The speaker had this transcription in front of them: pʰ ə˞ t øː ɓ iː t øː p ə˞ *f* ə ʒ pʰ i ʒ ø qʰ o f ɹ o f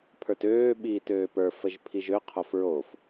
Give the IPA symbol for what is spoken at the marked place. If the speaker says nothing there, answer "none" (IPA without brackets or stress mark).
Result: f